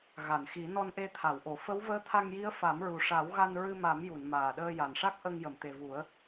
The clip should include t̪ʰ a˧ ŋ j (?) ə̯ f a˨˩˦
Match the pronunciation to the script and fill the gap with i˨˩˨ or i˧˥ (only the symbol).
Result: i˧˥